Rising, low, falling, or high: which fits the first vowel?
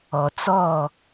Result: low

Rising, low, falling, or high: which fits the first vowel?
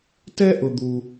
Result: high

